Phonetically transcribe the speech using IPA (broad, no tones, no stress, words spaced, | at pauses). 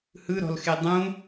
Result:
hɯɾɔ̤lxe dˤũ